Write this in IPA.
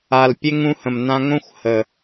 a˨lpʲe˦ŋ ũ˦hə̃˨mnã˦ ŋõ˦xʷ hə˨

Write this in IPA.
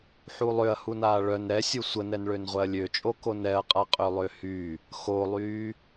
ħulˠøɐ̯ hunaːɭœn ɾɛsʲu sʷənɛn ɭønʁʷɛɐ̯lʲøt͡ʃʼo konɛɐ̯qʼa qʼølˠøhy | xolˠyː

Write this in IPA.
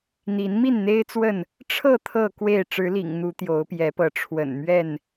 n̪i˨˦nmi˥˨nn̪e˦ɪ̯ t͡swə˥˨n | ʈ͡ʂʰɤ˥˨ t̪ʰɤ˥˨kwe˥˨ɪ̯ ʈ͡ʂɻ̩˨˦lḭ˨˩ŋ n̪u˨˦ t̪jo˨˦ʊ̯pjɛ˨˦pɤ˨˦ ʈ͡ʂʰwə̰˨˩nmɥɛ˥˨n

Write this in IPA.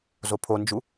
zopʰond͡ʒu

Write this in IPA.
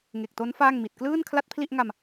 ŋe˨˩k̚to˦˥n faː˥˩ŋmi˨˩t̚ klɯː˥˩n kʰla˥˩t̚pʰli˥˩ʔŋa˧m

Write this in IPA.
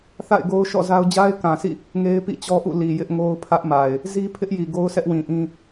θa̰˦˨ɪ̯ ɡo˦ʊ̯ʃɔ̰˦˨ za˦ʊ̯ d͡ʑa˦ɪ̯kã˨sʰḭ˦˨ | ŋe˦ɪ̯pḭ˦˨t͡ɕɔ˦ʔṵ˦˨ li˨jɪ˦ʔŋo˦ʊ̯ pʰä˦ʔ ma˨ɪ̯ | zi˦pʰɪ˦ʔji˨ ɡo˦ʊ̯sʰɛ˦ʔwĩ˨ʔĩ˦

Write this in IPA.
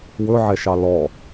wɵʕɛʃɑ lɔ

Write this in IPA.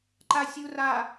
ǃasʲu ra

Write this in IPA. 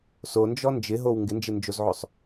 sond͡ʒɔ nd͡ʒɪɦow ŋɡɪnd͡ʒɪnd͡ʒozʕosˤ

